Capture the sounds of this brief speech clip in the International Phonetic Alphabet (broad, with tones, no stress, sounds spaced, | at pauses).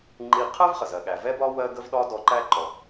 ŋ͡ǃ i˧ qʰ ɜ˥ v χ ə˩ z ɜ˩ ɠ æ˩ v ɛ˥ b ɒ˥ w ɜ˥ ɡ ə˥ v ɗ ɒ˥ d ɔ˧ ǃ æ˥ ǃ ɔ˩